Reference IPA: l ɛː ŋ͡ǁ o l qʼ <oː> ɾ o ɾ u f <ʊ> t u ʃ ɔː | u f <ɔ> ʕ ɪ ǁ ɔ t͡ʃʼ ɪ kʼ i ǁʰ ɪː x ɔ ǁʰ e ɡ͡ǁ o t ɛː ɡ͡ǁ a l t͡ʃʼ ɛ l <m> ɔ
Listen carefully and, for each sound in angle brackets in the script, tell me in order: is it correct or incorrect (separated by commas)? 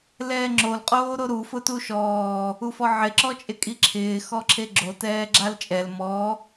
correct, correct, correct, correct